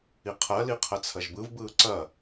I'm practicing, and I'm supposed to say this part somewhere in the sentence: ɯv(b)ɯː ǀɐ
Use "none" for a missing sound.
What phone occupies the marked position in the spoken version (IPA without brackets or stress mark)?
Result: b